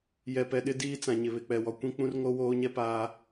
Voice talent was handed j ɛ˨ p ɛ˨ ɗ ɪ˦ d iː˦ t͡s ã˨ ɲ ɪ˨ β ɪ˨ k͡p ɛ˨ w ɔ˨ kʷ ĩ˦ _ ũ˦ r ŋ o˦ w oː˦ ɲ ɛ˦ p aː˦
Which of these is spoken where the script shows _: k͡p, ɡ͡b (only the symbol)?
k͡p